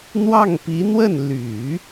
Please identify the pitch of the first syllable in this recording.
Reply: falling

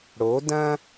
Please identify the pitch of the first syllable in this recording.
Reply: rising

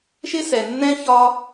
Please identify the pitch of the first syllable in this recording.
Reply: high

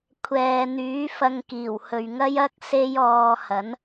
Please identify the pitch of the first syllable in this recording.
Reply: low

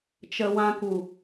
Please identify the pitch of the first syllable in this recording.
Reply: low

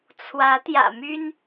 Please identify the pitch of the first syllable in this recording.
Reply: rising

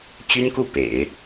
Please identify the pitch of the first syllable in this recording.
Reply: high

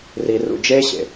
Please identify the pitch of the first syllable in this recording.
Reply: low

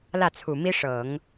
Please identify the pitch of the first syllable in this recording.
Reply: falling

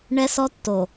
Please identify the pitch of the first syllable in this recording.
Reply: high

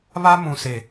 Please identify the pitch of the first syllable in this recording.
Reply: high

